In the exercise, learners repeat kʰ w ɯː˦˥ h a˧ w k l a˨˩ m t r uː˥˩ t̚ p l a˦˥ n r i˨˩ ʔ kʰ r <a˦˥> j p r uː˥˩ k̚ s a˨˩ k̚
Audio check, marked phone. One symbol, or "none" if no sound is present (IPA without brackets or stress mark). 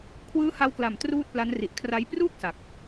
a˦˥